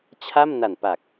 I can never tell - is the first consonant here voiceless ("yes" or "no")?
yes